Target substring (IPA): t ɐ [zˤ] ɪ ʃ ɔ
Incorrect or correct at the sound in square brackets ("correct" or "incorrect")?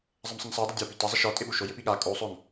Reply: correct